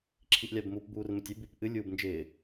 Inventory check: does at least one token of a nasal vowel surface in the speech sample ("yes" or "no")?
no